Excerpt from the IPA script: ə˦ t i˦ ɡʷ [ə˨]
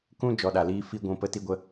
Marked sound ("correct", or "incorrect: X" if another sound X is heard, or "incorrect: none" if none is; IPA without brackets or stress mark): incorrect: ə˦